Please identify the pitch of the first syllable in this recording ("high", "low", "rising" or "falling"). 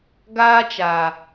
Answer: high